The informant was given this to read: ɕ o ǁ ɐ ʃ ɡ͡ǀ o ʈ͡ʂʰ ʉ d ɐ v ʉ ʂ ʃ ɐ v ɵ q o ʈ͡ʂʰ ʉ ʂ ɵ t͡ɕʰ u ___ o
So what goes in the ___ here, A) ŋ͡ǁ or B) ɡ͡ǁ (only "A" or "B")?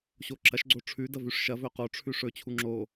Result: A